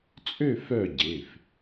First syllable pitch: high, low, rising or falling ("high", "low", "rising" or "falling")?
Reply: falling